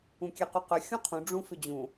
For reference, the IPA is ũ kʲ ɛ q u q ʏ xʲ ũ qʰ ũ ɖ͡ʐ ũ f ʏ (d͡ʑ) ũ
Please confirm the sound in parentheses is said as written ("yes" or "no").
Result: yes